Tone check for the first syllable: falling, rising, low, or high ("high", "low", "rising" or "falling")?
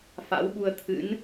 rising